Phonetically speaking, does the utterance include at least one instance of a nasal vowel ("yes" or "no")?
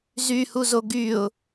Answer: no